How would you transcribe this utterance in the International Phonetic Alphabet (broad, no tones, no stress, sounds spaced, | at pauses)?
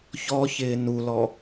ç ɔ ç ɪː n u l ɔ